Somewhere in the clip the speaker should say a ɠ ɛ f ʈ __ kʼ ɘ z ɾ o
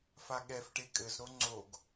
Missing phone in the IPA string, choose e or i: e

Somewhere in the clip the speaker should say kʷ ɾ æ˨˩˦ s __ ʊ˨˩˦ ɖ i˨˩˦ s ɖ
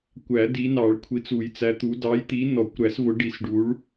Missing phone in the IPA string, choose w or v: v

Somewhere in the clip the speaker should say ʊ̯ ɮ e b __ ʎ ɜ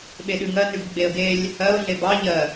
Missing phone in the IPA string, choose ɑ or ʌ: ɑ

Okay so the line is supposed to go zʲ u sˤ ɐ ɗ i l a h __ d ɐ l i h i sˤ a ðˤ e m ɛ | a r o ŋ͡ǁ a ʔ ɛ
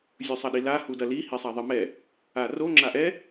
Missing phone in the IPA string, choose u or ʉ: u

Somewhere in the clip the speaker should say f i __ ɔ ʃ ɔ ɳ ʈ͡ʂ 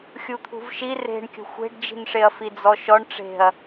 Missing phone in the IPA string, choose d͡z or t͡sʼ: d͡z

